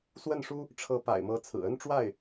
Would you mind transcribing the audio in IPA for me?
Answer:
swə˥˩nʂu˥ | ʈ͡ʂʰɤ˧˥pa̰˨˩ɪ̯mɤ˧˥ t͡sʰɹ̩˨˩ə˥nʈ͡ʂwa˥˩ɪ̯

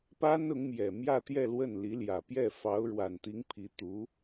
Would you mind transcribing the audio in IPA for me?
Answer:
pa˥n ʊ˧˥ŋmjɛ˨˩ mjä˥˧t̪jɛ˥˧lwə˥˩n li˧˥ljä˨˩pjɛ˥˩ fɑ˧˥ʊ̯ɻwa˨˩nt̪i˧˥ŋ pʰi˧˥ t̪u˧˥

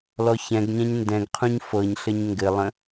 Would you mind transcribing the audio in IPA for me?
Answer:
lɔçɛ̃ɡɲɛ̃ɲ ndɛ̃ɡqʰũɲ fɤɲɬɘɲ ŋɡɘlˠə̃

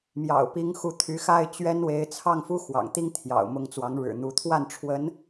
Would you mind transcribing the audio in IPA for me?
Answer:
mjɑ̰˨˩ʊ̯pi˧˥ŋxu˧˥ t̪ʰy˧˥xa˥˩ɪ̯t͡ɕɥɛ˥nwe˧˥ɪ̯ t͡sʰɑ˥˩ŋfu˥xwɑ̰˨˩ŋt̪i˥ŋ t̪ʰjɑ̰˨˩ʊ̯ mʊ˧˥ŋt͡swɑ˧˥ŋ ɻɻ̩˨˩n̪u˧˥ t̪ʰwa˥˩nʈ͡ʂʰwə˧˥n

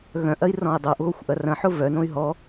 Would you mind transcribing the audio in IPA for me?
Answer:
ɣœ̃ʔɐi̯rɔ̃i̯ dˤoʔɣoxʷʔɐ rɐ̃ħʊ vœnõy̯ ɦɔ

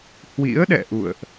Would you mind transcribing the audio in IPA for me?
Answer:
hwḭ˧˥ə̯ɗɛ̰˧˨ ʔṵ˧˨ə̯ʔ

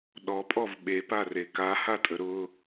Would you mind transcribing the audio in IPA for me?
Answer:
ɗɔpʼɔv ɓepare kahatʼə ɾʊ

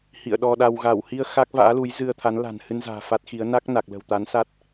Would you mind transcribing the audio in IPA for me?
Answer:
hḭ˧˨ə̯ɗɔ˧ɗa˧w ɣa˧˩whi˧ə̯ xa˦˥k̚va̰ː˧˥ lu˨˦jzɨ˧ə̯t̪ʰa˨˦n la̤˨˩n hɨ˧nza̤ː˨˩ fa˦˥t̚xi˨˦ə̯ na˦˥k̚ na˨˩k̚lə̤˨˩wt̪a˨˦nsa˦˥t̚

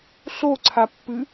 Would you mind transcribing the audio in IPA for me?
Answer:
ɬoǀʰapːɨ

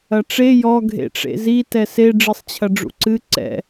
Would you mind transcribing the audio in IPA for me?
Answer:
ɐʈ͡ʂe jɔ ɡʱḛʈ͡ʂḛzi tɛse ɖ͡ʐɨsˤt͡ɕʰɐɖ͡ʐṵǀɨ ǀɛ̰

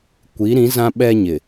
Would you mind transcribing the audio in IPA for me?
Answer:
kʷi˨˦ɾĩ˨˦ zã˦ɓɛ˦ɲɪ˨

